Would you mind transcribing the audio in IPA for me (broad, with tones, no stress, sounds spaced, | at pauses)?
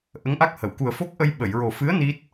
ʔ ə˧˥ ŋ ʔ a˦˥ k̚ h ə˨˩˨ w k u˨˩ ə̯ f o˦˥ k̚ ʔ ə˧ j ɓ ə˨˩˨ j ɹ o˨˩ f ɨ˧˥ ə̯ n i˦˥ t̚